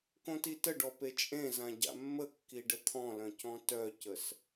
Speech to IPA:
kõtitəɖɔ pet͡ʃʼẽzã ɟa̰mːəkːi ɖət̪ʰɔ̃lœ̃ cɔ̃tœcəs

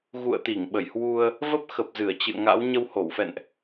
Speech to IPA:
ɣṵ˧˨ə̯t̪i˧˩ŋɓə˧˩j hwu˧ə̯ | və˦˥p̚xə˨˩p̚ zɨ˧˩ə̯t͡ɕɨ̰˧˨ə̯ŋa̰˧˥w ɲə˧who˧˩wfɛ̰˧˨nʔ

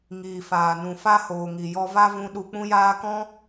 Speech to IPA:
ŋiː˨faː˨nũ˨ fa˦hoː˨ŋi˨jɔ˧ va˦vũ˧ ɗu˧k͡pũ˦jaː˦ kɔ̃˦

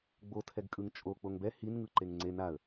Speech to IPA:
ɡ͡botʰɛɡkʼɯŋ t͡ʃʼo k͡poŋbɛ hinŋɯ ǃeŋŋ͡ǀe naə̯

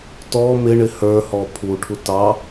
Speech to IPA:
tɔ mɪ ɳɪhə˞hɔ pʰuʈʰu tɑ

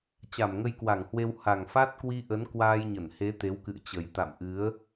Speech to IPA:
t͡ɕa˧˩mŋə˧jkwa˧˩ŋhwe˧w ha˨˩ŋfa˦˥t̚kwi˧ʔə˨˦n kwaː˧jɲə˧˩nhe˨˦ t̪e˨˦wkɨ̰˧˨ə̯t͡ɕə˨˩j t̪a̰˧˨mʔɨ˨˦ə̯

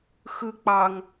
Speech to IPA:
xɯ k͡pɑŋ

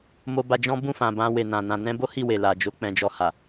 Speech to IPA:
mo˧ba˧d͡ʒɔ̃˦ bũ˦˨fã˨ bã˧we˨nã˨ nã˨nɛ̃˧bo˦ hi˦˨we˨la˨d͡ʒo˨˦ k͡pɛ̃˧d͡ʒɔ˧ha˨

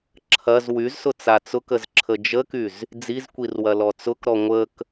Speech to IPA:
ǁʰɐz wyzsʊ t͡sat͡sʊkəz ǁʰəd͡ʒəkyz | d͡zizkʷir wɐlɔt͡sʊkɾɔ ŋʷək

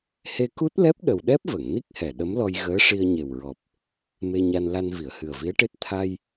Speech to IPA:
he˧ku˦˥t̚lɛ˦˥p̚ɗə˨˩w ɗɛ˦˥p̚və˨˩˨ŋni˦˥k̚hɛ˨˩ ɗə˧˥mlɔ˧jɣəː˧˥ʂi˧ə̯ ɲe˨˩wɹɔ˨˩p̚ | me˧ɲa˧nla˧n vi˨˩˨ə̯hɨ˨˩ə̯vi˧˥ə̯ʈe˦˥t̚ t̪ʰa˧j

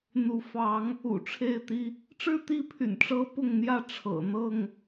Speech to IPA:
n̪u˨˦ fɑ˨˦ŋ | ṵ˨˩ʈ͡ʂʰe˥˨ɪ̯t̪i˦ | ʈ͡ʂɻ̩˥˨t̪i˥˨pʰy̰˨˩n ʈ͡ʂɤ˦pʊ˥˨ŋn̪jä˥˨ ʈ͡ʂʰɤ̰˨˩ n̪ɤ˥˨ŋ

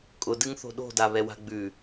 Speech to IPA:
kʼʊdɨŋθo̤ ɗo̤daβɛwa̤ ɡ͡bʉ

